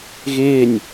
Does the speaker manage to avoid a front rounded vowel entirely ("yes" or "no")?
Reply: yes